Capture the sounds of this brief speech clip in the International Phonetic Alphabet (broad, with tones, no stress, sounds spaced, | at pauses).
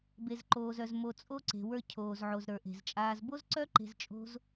b e˩ z ǃ oː˩ z œ˩ z m o˩ t͡sʼ o˧ ǀ e̤˩ w ə˞˧ cʰ oː˩ z ʕ o˩ z ɾ ə˞˩ ʔ e̤˩ z t͡ʃʼ aː˧ z b o˥ z ǀ œ˥ ǃ e̤˧ z t͡ʃʼ o̤˥ z